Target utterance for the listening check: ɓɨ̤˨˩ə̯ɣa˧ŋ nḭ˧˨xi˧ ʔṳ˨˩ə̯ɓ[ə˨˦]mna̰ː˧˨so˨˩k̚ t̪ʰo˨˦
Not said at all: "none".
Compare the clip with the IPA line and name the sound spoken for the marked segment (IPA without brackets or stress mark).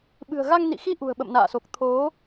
ə̰˧˨